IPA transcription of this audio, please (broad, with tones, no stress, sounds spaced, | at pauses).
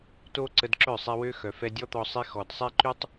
t o˦ ǀ ə˧ d ǁ œ˦˨ sˤ ɛ˧ w ø˦ x œ˨ f ɛ˧ dʲ ɔ˦ t̪ ɔ˧ sˤ i˧ x ɔ˨ d sˤ ɛ˦ ǃ y˦ tˤ